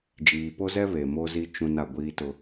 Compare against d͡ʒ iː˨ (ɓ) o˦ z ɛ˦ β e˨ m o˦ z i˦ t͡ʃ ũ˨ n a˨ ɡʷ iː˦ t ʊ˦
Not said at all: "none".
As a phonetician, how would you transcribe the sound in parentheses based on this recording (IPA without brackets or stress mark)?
p